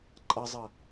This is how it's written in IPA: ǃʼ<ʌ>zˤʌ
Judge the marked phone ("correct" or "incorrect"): correct